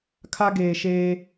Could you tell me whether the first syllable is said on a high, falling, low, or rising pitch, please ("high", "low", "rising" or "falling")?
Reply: high